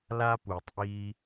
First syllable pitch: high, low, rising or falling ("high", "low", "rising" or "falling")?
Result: high